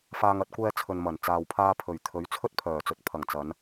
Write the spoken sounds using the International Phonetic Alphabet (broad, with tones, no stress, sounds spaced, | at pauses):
f aː˧ ŋ ɐ˧ t̚ kʷ ɛː˧ t͡sʰ ɵ˨ n m ɐ˨˩ n t͡s aː˨ w pʰ aː˧ pʰ ɵ˨˩ ɥ t̪ʰ ɵ˨˥ ɥ t͡sʰ ɵ˥ t̚ pʰ œː˨˩ t͡s ɵ˨˥ t̚ pʰ ɐ˨˩ ŋ t͡s ɐ˨˧ n